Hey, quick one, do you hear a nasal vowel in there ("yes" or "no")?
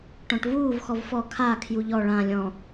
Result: yes